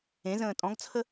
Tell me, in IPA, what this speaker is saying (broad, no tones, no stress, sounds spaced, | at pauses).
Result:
ẽ z ə̃ː tʼ ɔ̃ ɡ t͡sʰ ə